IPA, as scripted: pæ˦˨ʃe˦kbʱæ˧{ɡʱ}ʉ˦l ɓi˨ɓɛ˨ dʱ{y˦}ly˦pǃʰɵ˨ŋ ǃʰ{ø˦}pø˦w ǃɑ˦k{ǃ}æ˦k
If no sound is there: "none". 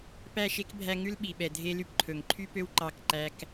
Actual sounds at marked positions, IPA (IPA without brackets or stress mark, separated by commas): ŋ, e˦, y˦, ǃ